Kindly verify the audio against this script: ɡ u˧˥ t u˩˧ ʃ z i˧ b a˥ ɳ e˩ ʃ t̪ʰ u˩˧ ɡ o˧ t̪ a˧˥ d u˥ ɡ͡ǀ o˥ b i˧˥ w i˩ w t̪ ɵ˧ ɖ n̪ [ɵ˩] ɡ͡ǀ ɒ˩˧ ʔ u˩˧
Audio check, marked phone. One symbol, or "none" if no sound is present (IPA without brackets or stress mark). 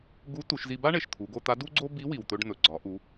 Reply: ɵ˩